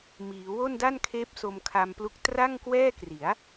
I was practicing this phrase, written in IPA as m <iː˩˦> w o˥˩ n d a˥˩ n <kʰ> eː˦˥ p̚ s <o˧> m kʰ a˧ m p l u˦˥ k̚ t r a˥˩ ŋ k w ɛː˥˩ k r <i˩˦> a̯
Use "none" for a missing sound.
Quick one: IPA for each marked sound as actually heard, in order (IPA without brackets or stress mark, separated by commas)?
iː˩˦, kʰ, o˧, i˩˦